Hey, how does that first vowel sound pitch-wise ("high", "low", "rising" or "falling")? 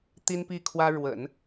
high